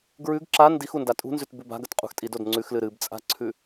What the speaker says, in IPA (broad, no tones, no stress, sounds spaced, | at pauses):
ɡ ɹ ʉ ɡ ǁ a n d i x u n d a tʼ ṳ n z ʉ t b ʉ b a̤ ɡ ɐ t qʼ ṳ x tʼ i d o d ŋ͡ǀ ʉ x l ɨ ɾ ɨ b t͡sʼ a̤ ǀʰ ʉ